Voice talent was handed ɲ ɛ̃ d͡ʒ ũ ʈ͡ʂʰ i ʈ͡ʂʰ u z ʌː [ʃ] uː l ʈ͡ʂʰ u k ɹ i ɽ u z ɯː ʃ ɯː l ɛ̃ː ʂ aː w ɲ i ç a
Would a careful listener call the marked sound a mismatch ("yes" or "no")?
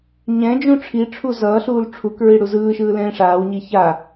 yes